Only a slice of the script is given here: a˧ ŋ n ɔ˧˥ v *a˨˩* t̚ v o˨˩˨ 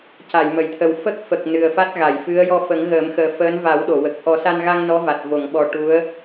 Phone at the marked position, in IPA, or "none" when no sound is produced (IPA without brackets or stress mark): a˨˩